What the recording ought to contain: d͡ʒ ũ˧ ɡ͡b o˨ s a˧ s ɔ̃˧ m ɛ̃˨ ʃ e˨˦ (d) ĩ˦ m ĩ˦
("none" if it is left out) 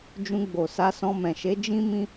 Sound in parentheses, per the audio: d͡ʒ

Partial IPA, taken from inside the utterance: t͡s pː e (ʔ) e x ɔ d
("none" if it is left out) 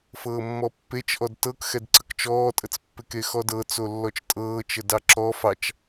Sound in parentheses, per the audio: k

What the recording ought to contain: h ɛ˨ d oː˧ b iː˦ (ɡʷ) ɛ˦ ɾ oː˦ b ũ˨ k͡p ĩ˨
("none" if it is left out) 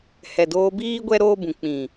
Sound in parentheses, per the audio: ɡʷ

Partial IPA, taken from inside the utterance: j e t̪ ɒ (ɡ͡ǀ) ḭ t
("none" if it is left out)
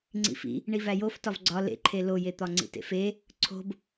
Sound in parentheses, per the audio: ŋ͡ǀ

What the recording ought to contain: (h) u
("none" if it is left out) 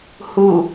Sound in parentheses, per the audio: h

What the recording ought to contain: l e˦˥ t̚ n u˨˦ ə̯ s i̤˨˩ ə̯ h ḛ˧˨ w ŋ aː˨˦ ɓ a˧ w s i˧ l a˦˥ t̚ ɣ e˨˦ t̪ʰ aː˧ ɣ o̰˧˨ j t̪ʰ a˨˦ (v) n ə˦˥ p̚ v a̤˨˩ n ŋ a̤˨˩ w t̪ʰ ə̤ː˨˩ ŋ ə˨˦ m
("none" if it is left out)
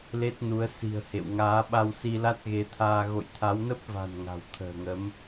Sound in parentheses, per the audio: w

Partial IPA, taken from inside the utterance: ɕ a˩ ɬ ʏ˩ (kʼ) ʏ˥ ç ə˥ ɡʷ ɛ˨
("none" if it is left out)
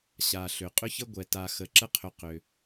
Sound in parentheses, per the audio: qʼ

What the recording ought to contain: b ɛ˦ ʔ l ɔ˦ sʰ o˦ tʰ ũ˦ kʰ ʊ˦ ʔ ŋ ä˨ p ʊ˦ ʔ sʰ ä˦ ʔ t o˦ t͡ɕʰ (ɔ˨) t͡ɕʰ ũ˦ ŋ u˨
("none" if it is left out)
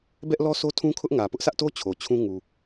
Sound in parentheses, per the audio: o˨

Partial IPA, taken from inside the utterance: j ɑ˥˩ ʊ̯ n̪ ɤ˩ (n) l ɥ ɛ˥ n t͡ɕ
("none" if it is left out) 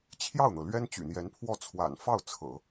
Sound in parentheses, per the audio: none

